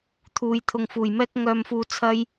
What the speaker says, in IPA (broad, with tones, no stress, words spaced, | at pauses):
t̪ʰuː˨j t̪ʰʊ˨ŋfuː˨˩jmɛː˥k̚ ŋœː˧mfuː˧ t͡sʰɐ˥j